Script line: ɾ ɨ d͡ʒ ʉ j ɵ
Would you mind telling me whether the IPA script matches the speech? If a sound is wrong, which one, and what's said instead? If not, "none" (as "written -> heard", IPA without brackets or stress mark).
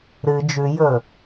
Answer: none